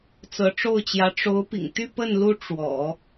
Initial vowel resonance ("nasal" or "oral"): oral